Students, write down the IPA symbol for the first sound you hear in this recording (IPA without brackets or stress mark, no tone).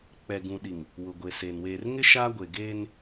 k͡p